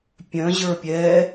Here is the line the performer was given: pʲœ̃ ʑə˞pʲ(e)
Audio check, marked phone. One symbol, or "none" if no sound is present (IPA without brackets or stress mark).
ɛ